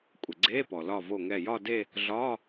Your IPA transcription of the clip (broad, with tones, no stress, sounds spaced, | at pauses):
kʷʼ ɘ˩ ɡ͡ǀ eː˧˥˧ p ɔ˩ l ɒ˧˩ v o˧˩ ŋ ɛ˧˩ j ɒ˥˧ d e˥˧ | ɮ ɒː˧˥˧